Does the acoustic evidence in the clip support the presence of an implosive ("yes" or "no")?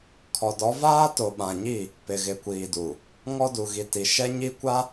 yes